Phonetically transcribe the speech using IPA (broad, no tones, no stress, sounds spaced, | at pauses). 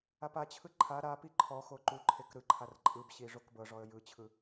a p a t͡ɕʰ ɯ ǃʰ a ɾ a p i ǃʰ ɔ x o ǃ u ǃʰ e k ɾ ɯ ǃʰ a r ǃʼ ɯ b ɕ i ʐ o k b ɤ ʐ ɔ ə̯ j ɯ t͡ɕʰ ɯ